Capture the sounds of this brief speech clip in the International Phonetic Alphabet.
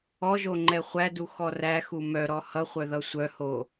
ɔ ʒ o ŋ͡ǃ ɛ χʷ æ d u x ɔ r æ x u m œ ɾ ɔ h ʌ χʷ œ ð ʌ sʷ œ h o

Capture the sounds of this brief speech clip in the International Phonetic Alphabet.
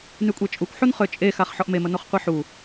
n y kʷʼ e t͡ʃʼ u kʷ ħ u n χ ø t͡ʃʼ e x a χ ħ ɔ ʔ m e m ə n o χ qʷ i ħ u

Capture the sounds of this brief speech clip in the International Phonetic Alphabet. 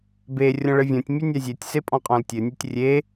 b e rʲ ɔ̃ ɭ ɘ vʲ õ tʲ mʲ ɛ nʲ a zʲ e tʲ s e pʼ ɔ̃ qʼ ɔ̃ l tʲ ɘ nʲ ɤ tʲ rʲ e

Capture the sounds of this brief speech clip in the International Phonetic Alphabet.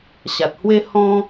ɕ a˨ t̚ h w e˦ h ɔ̃˦

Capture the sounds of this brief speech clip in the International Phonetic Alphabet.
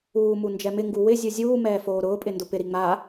uː m u n d͡ʒ ɛ m ɪ ŋ ɡ u w ɪ zʲ u zʲ uː m ɛː f oː ɾ ʊː pʼ ɪ n d ʊ p ɪ ɾ i ŋ͡m a

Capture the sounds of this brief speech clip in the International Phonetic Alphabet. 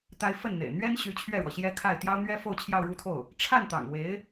t̪ a˥ ɪ̯ f ə˥˩ n n̪ ḛ˨˩ ɪ̯ n̪ ɥ ɛ˥ n ɕ y˧˥ t͡ɕʰ ɥ ɛ˥˩ ɻ w ɔ˩ ɕ j ɛ˥ kʰ a˥˩ ɪ̯ t̪ j ɑ˥ ʊ̯ n̪ ɥ ɛ˥ f o˥˧ ʊ̯ t͡ɕʰ j ɑ˥˧ ʊ̯ ɻ u˥˧ t̪ʰ o˥˩ ʊ̯ | ʈ͡ʂʰ a˥˩ n t̪ ɑ̰˨˩ ŋ w e˧˥ ɪ̯

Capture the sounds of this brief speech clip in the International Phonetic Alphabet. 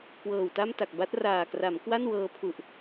k w ɤː˨˩ w t a˥˩ m t a˨˩ k̚ b a˦˥ t̚ r aː˨˩ k r a˩˦ m k w a˥˩ n w ɤː˧ pʰ u˨˩ ʔ

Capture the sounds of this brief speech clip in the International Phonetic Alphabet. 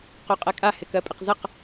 q o qʼ ɛ kʼ a h ɪ k ɜ pʼ ɪ q z ə q

